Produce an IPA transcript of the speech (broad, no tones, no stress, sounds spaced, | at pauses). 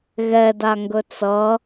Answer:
ɣ ɛ d a ŋ ɡ ɵ t͡s ʌ